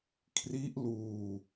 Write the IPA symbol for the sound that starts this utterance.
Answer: kʰ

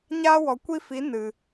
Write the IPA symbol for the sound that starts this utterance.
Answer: ɲ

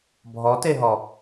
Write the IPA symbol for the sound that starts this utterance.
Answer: bʱ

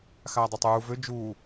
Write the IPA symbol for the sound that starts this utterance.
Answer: x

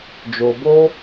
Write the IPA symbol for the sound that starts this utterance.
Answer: d͡ʒ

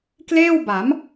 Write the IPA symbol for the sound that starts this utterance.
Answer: k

